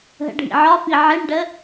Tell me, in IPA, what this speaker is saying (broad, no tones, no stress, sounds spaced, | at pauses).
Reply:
ɦ ə̰ ɖʱ ḭ ʕ ɒ f i ʕ i ɳ ɖ ə